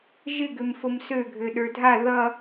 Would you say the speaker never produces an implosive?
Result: no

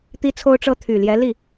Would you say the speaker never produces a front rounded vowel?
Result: no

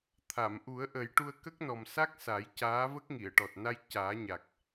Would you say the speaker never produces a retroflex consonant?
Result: no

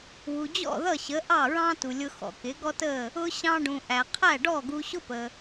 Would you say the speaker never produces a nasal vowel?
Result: no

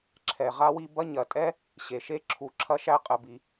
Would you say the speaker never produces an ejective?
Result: no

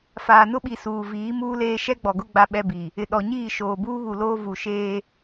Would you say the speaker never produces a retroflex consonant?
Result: yes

